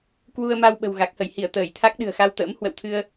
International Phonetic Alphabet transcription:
k w u˧ ə̯ m a˧ w ɓ ə̤˨˩ w ɣ a˨˩ k̚ h ə˧˩ j h i˧˩ ə̯ t̪ əː˧˩ j t̪ʰ a˦˥ k̚ ɗ ɨ̤˨˩ ə̯ x a˧ w t̪ ə̰ː˧˥ m h w ə̰˧˨ w t̪ʰ ɨ˧ ə̯

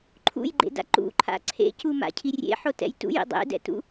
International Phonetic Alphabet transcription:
ǃʰ ṵ j ɡ͡ǃ ḛ d a̰ ǃ ṵ ǃʰ a̰ ǀʰ ḛ c u m a̰ cʰ i rʲ ḛ ħ o t ɛ̰ j t ṵ j ḭ dˤ ḛ d ɛ̰ t ṵ

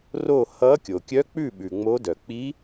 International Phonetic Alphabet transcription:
r o˦˨ h ʌ˧˥ kʲ o˩ kʲ œ˧˥ k͡p ʉ˦˨ ɓ ʉ˩ ŋ͡m o˧˥ d œ˩ k͡p i˧˥

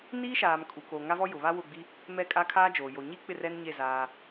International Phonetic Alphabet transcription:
n iː˦ ʃ aː˨ m kʼ u˨ k o˨ ŋ a˦ v ɔ˦ j ʊ˨ β a˦ w ʊ˦˨ ɡ͡b i˦ | m ɛ˦˨ kʼ a˦ kʰ aː˦ d͡ʒ oː˨ j o˨ ɲ i˦ k͡p ɪ˦˨ r ɛ˦ n ɲ e˦˨ z aː˦

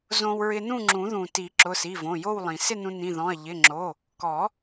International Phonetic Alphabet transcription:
z õ˧ w ɹ ɪ˧ n ũ˥˨ ŋ͡ǁ ũ˨˩˦ ð ũ˩ t i˨˩˦ ǁ ʊ˩˧˩ s i˩˧˩ v õ˩˧˩ j o˥˨ w lˠ ĩ˩ s ɪ˥˨ n ũ˧ n ĩ˩˧˩ ð ɔ̃˩˧˩ ɐ̯ ʎ ɪ˩˧˩ ŋ͡ǁ o˩˧˩ | k ɔ˨˩˦

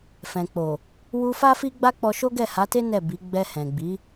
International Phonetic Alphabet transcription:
f ɛ̃˨ k͡p o˨ | w u˧ f a˦ f i˦ ɡ͡b a˦ k͡p ɔ˧ ʃ o˦ ɡ ɛ˦˨ h a˨˦ t e˦ n ɛ˦˨ b i˨˦ ɡ͡b ɛ˧ h ɛ̃˨ ɡ͡b i˨˦

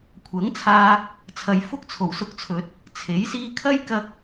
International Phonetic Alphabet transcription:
kʷʰ ɐ˨˥ ŋ t͡sʰ aː˧ | t͡sʰ ɐ˨ j f ʊ˥ k̚ t͡sʰ o˨˩ w s ʊ˧ k̚ t͡sʰ ɵ˨ t̚ | t͡sʰ e˨˥ j s iː˧ kʰ ɐ˥ j k ɐ˧ k̚

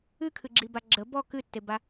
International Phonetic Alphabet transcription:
ɨ kʰ ɨ ɡ͡ǁ i b a ɡ͡ǁ ə b ɔ k ɨ tː e b a

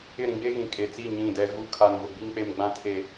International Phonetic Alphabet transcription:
ɪ˦˨ ɾ ĩ˦ ɡ͡b e˦ ɣ ĩ˨ kʼ e˨ t͡s i˦˨ ɲ ĩ˦˨ d ɛ˦ ɣ u˦ kʰ a˨ n v ʊ˨ ɡ͡b i˦ ŋ k͡p e˨ m ɡ͡b ã˦ tʰ e˨

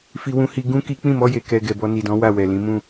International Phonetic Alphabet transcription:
f i˦ w ũ˦ h i˧ ɡ ũ˦ k i˦ k͡p ĩ˦˨ m ɔ˧ j e˨ k ɛ˧ ɡ ɛ˨ b ɔ˧ n i˨ d ɔ̃˨˦ w a˦˨ w ɛ˨ l ĩ˨˦ m ũ˦˨

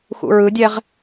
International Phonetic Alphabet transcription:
x ṵ ɹ ɯ dʲ ɛ ʁ

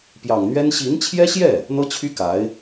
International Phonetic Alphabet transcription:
p j ɑ˨˩ ŋ n̪ ɥ ɛ˥ n ɕ i˧˥ n t͡ɕʰ j ɛ˥ ɕ j ɛ˥˩ | n̪ ɤ˥ t͡ɕʰ y˥ k a˧˥ ɪ̯

